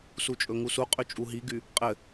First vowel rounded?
yes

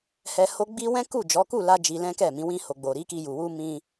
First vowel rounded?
no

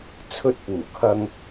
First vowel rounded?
yes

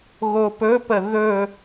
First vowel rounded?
yes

